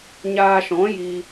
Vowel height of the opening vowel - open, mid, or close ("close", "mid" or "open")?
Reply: open